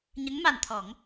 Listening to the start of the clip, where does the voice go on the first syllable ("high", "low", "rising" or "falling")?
rising